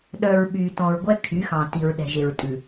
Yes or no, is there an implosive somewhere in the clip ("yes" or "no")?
yes